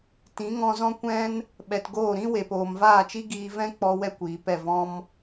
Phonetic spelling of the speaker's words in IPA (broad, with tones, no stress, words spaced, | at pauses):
tĩ˨˦ŋɔ̃˧zɔ̃˦ kʷɛ̃˦n | ɓɛ˨tɡoː˦˨ ɾĩ˦ we˨poː˨mvaː˦˨t͡ʃi˦ ɡiː˧vɛ̃˦k͡pɔ˧ wɛ˦kʷiː˨pɛ˦˨ vɔ̃˦m